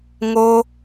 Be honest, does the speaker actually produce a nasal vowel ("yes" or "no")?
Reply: no